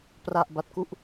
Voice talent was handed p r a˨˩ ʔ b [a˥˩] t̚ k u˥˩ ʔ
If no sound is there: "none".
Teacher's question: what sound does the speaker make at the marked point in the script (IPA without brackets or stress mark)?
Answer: a˦˥